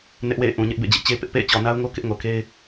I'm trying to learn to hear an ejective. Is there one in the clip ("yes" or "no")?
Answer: no